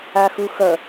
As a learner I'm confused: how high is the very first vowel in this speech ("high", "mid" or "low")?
low